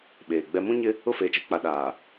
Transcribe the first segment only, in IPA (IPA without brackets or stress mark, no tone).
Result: ɓ